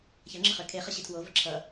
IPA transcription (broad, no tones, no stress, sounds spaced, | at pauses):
ç ɐ ŋ͡ǁ ə χ ø kʰ e χ ɐ ɕ i tʰ w o v ə ǁʰ ʌ